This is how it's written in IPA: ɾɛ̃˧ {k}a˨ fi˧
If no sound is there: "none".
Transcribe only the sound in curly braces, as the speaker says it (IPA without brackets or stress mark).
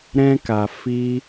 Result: k